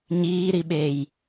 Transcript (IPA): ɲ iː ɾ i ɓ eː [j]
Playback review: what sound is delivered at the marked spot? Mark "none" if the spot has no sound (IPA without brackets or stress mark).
j